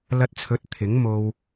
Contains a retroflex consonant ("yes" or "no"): no